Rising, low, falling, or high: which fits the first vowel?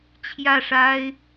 falling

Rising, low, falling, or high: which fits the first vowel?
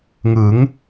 rising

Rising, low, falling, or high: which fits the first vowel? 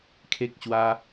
high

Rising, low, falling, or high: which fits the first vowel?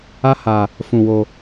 high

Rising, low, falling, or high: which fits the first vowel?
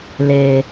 low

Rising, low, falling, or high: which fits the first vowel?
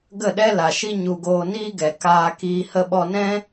falling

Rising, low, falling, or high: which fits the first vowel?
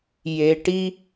low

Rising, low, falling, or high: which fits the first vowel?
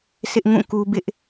high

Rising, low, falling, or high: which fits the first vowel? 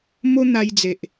high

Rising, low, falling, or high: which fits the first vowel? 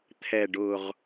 low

